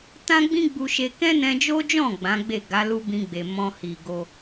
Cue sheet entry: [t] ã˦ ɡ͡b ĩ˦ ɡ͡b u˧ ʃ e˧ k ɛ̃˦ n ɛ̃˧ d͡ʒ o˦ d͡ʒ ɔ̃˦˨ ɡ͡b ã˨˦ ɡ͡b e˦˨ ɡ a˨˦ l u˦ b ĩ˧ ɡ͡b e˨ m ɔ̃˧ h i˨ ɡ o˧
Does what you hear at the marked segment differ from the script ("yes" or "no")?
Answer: no